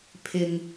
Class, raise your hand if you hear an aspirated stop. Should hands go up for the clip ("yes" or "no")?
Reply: yes